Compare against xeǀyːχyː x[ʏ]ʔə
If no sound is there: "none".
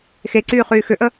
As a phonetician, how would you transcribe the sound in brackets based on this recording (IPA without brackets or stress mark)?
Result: ʏ